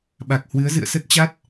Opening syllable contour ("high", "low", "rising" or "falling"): low